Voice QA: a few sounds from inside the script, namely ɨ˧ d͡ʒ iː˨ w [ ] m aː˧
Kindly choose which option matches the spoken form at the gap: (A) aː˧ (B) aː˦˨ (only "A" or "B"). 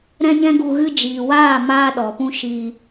B